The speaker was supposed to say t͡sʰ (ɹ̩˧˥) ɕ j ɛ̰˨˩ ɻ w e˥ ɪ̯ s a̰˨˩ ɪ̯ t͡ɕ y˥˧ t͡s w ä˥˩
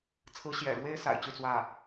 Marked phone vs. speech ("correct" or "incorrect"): correct